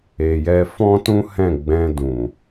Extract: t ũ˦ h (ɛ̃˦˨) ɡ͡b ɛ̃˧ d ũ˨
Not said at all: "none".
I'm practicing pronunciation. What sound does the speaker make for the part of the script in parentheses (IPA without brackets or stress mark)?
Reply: ɛ̃˦˨